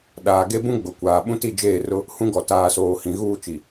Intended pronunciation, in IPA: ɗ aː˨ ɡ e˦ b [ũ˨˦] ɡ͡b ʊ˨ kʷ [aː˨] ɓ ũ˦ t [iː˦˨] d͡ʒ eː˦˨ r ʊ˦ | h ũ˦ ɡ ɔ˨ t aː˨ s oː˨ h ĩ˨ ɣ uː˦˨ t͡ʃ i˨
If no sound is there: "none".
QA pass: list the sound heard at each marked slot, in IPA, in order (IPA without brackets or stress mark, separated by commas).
ũ˦, aː˨, i˦˨